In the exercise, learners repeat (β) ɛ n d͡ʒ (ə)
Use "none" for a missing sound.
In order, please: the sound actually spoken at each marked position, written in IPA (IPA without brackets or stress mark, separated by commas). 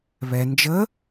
β, ə